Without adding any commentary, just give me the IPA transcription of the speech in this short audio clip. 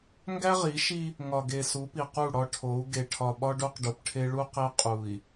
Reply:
ŋ ɡ æ˦ ʁ i˨˦ ʃ i˦ | ŋ ɒ˨ ɡ e˨ s u˨˦ p i˨ q u˦˨ ɽ ɒ˦ ʈʰ o˨˦ u̯ ɡ e˨ ʈʰ ɒ˨ ɓ ɒ˦ ɖ o˦ q ɖ o˨ p ʈʰ e˦ ɭ u˦ q e˦ qʼ u˨ i̯

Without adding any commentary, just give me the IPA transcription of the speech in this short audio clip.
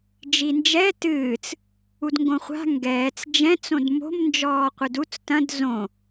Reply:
d͡ʒ i n d͡ʒ ɛ t ɨː t͡s | u d ŋ ɡ õ χʷ a̤ ŋ ɡ ɛː t͡s d͡ʒ ɛ̃ t͡s õ d m o̤ m n d͡ʒ ɔː qʷ ɨ d u t͡s t ɐ̃ d z õ

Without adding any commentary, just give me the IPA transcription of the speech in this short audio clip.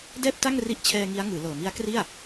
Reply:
d ɛː˥˩ p̚ t a˥˩ ŋ r i˦˥ ʔ t͡ɕʰ ɛː˧ ŋ i˦˥ a̯ ŋ ɯː˩˦ l ɤː˨˩ m i˦˥ a̯ k r i˥˩ a̯

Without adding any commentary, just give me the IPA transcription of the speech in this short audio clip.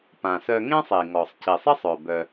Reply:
p ã˩ s œ˧ ŋ ẽ˥ sˤ i˩ ŋ ɔ˩ sˤ c i˩ sˤ ɪ˥ sˤ œ˩ b œ˩

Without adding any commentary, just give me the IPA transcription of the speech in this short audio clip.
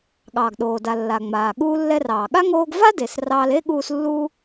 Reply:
ɠ ɑː˩ ɡ ɗ oː˩ d a˩ lː a˩ ŋ͡m aː˩ ɠ uː˧ lː ɛ˧ r ɑː˩ ɠ a˥ ŋ oː˧ ɡ v a˥ d e˩ s r ɑː˧ l e˥ ɠ uː˧ s lː uː˥

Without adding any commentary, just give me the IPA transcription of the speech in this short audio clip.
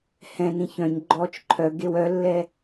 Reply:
h ɛ̃ n ĩ ç œ̃ ɲ ɡ͡ǃ ɔː t͡ʃ ǃʰ œ ɡ e w œ lː ɛ

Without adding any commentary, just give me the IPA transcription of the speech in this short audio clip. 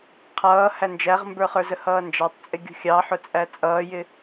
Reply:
qʰ ʌː h æ n d͡ʒ æ ʁ m b ə˞ χ ə˞ z ə h ʌː n d͡ʒ ɑ tˤ t͡sʼ ɪ ɡʲ ṳ xʲ ɑ ħ ʊ t͡sʼ æ t͡sʼ ʌː j ɪ

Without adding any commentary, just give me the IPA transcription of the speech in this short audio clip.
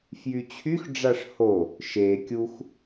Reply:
f j y t͡ɕʰ y x ɖ͡ʐ a ʂ h o | ʃ e kʲ u x

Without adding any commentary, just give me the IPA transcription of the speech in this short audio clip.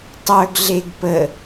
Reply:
tˤ œ ɡ ɮ e ɡ p ə

